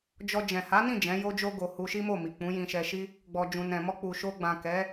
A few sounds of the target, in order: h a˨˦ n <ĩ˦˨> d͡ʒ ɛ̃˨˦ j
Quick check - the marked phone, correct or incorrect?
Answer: correct